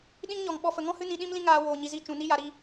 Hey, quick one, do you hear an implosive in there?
yes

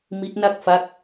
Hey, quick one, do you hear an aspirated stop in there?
no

